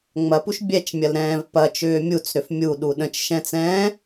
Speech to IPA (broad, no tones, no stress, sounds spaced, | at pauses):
ŋ͡m ɐ p u ʃ bʲ ɛ t͡ʃ mʲ ɐ l ɾ ɛ̃ː v p ɐ t͡ʃ ʏː mʲ u t͡s ɾ ʏ f mʲ u ɗ u ɗ ə̃ t͡ʃ ʃ ɛ̃ t͡s ɛ̃ː